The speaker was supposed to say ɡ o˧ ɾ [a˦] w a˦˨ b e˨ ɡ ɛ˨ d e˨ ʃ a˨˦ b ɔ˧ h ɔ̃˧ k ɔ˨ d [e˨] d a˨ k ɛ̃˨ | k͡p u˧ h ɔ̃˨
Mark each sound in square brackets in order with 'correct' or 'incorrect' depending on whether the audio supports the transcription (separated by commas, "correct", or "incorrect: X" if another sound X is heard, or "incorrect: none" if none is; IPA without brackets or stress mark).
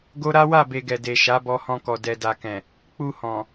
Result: correct, incorrect: ɛ˨